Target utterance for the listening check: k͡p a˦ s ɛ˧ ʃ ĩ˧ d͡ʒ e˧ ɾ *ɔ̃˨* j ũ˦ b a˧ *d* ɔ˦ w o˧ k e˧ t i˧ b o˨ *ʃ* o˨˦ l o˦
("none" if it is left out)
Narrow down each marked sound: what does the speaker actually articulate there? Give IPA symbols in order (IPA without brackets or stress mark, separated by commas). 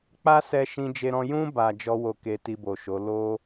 ɔ̃˧, d͡ʒ, ʃ